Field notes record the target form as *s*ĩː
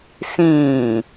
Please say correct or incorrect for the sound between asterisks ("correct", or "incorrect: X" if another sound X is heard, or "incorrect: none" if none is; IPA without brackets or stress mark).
correct